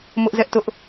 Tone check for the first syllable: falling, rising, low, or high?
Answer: high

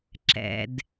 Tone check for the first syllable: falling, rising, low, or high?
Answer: low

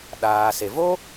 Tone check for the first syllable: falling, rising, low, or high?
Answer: low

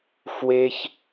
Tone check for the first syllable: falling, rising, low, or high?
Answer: high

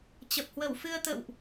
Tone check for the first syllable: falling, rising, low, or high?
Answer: low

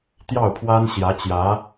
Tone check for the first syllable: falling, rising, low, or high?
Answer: falling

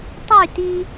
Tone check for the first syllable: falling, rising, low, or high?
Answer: falling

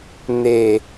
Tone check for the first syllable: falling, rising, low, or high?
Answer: low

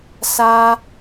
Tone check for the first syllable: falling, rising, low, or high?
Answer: high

